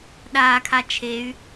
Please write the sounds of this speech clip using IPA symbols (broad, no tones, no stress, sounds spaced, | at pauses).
ɗ aː kʰ a t͡ʃʰ e y̯